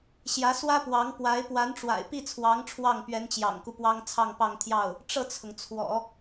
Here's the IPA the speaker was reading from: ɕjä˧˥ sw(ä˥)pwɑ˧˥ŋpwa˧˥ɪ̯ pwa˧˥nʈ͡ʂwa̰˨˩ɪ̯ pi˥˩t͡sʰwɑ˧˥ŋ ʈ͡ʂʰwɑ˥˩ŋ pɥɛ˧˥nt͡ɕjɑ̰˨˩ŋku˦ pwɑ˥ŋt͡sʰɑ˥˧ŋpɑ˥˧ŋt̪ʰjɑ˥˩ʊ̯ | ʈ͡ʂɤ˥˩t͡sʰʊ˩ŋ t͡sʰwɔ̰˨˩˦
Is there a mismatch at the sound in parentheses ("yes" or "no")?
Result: no